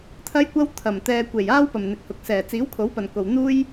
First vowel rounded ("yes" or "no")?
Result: no